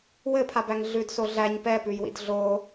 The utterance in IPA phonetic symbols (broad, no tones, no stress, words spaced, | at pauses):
wɘpʰabæŋ ɮʉdso ɮæɲ pɛpʉjwḭd ɮo